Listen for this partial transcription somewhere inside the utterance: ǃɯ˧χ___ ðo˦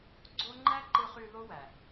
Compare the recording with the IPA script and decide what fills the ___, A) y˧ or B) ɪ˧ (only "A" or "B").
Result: A